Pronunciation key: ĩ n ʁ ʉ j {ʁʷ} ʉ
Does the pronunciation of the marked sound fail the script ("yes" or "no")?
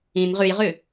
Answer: yes